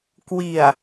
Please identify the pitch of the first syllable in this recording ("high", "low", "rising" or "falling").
low